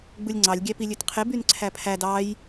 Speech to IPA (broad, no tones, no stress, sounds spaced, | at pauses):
ɡ͡b ɯ lʲ ŋ͡ǀ ɑ lʲ ɡʲ æ p i lʲ ø t qʰ e b y n ǀʰ æ pʰ æ d ɑ j